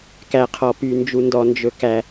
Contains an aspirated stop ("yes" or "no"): yes